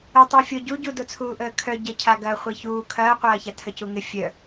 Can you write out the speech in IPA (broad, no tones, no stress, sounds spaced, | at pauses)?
ə tˤ i fʲ o ɟ u ɟ u d o t͡sʰ uː ʔ əː kʰ œ ɟ ə cʰ a ɡ ɐː χʷ i ç uː kʰ ɐː qʷ ɐː ç a tʰ ə c u ŋ ɪ fʲ œ